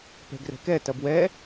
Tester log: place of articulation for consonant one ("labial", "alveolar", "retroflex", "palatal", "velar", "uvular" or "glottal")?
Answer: labial